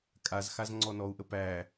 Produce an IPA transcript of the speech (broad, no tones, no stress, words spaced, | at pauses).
kʼazxaz ŋ͡ǀɔnɔu̯ʔə pæ